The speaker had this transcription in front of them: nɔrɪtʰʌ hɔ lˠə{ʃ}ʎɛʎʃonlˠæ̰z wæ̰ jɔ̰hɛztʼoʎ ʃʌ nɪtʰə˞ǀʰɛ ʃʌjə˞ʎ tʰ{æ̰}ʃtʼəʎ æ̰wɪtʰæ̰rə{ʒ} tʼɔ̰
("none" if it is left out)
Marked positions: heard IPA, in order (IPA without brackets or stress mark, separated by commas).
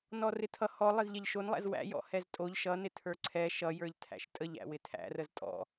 z, æ̰, z